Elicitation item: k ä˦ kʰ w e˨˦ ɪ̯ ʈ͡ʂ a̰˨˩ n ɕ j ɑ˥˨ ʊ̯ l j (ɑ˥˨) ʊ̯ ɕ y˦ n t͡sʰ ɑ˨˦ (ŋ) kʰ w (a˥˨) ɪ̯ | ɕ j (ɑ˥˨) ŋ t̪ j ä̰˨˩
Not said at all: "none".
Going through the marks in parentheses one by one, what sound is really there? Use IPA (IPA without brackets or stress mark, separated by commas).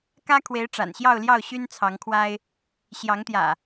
ɑ˥˨, ŋ, a˦, ɑ˨˦